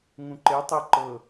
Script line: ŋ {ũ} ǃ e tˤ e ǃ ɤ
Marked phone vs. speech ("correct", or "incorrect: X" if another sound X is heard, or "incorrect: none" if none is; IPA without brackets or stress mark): correct